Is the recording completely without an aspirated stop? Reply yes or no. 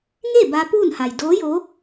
yes